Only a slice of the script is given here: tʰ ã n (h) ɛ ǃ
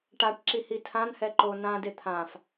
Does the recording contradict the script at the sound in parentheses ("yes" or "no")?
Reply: no